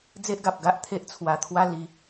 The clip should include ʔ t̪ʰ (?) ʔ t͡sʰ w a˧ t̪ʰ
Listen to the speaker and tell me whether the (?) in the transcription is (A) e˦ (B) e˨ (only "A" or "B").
A